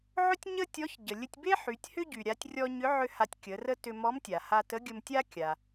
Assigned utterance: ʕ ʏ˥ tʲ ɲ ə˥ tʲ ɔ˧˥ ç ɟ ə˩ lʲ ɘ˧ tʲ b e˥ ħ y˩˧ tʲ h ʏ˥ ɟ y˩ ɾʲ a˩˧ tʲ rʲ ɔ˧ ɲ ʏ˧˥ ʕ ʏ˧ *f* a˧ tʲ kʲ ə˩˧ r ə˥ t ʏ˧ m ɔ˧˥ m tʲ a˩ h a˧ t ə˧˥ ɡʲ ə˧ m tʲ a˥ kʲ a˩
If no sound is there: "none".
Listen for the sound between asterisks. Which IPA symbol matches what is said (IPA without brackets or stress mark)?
h